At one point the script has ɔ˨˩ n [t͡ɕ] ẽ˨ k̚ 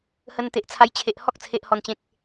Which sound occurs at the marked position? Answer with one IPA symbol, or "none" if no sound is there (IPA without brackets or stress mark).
t͡ɕ